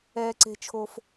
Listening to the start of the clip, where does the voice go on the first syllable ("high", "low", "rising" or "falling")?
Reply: high